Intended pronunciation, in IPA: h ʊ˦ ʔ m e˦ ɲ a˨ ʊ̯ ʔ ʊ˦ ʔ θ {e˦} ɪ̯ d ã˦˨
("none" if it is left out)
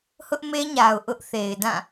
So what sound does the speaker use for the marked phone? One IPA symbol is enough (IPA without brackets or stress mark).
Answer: e˨